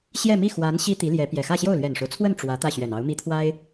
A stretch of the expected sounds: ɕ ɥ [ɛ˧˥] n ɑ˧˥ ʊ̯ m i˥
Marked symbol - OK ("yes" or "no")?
no